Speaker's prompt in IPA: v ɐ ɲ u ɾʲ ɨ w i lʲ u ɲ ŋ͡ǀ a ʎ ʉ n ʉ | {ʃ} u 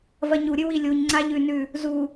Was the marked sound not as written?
yes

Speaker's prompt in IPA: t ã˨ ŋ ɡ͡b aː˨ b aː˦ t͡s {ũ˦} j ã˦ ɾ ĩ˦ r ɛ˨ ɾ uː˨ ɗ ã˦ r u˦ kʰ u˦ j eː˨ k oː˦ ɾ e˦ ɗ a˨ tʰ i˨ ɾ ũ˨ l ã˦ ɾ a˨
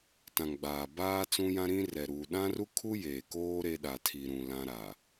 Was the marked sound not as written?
no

